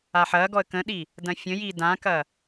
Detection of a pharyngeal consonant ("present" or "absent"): present